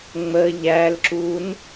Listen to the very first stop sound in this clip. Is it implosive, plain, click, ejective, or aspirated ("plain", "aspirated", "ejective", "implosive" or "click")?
click